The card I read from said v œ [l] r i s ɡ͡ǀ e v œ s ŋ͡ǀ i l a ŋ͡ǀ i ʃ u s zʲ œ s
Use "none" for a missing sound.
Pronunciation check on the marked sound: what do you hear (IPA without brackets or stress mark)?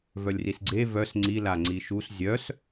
lʲ